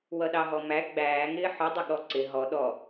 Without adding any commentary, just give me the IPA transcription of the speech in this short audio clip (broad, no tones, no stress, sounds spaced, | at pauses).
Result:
w ʌ ɗ ɑ ɦ ɔ m æ ɡ͡b æː ŋ ɪː ħ ʊ dˤ ɪ ɠ ɔ ǀ ɪ ɦ ɔ ɗ ɔ